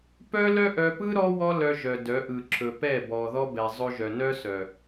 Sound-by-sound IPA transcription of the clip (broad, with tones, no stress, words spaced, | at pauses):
pœ˦lœ˦ʔœ˧pɯ˦ ɾɔ˦ wɔ˦lœ˧ʒœ˨ dœ˨˦ʔɯ˨ǁʰɵ˨ pɛ˦˨bɔ˨ðɔ˦ bɛ˨zˤɵ˧ ʒœ˨nœ˦ sœ˨